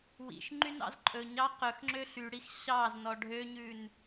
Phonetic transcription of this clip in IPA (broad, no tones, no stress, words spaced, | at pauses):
wḭʃ ŋ͡ǃynɑ̰zǃʼɵɲɑ qɵxŋ͡ǁø ɬyɽix ɕɑznɔ ɖʱøɲʉn